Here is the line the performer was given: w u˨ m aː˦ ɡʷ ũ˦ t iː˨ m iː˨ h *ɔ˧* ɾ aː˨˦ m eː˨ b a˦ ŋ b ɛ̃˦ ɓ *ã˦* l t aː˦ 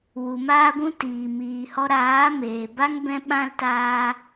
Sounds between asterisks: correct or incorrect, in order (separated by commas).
correct, correct